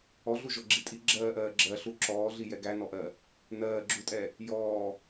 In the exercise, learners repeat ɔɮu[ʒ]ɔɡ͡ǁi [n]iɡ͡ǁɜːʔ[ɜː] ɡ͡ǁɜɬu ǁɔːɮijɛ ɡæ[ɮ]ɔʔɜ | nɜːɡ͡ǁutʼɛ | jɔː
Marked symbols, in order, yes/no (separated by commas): yes, no, yes, no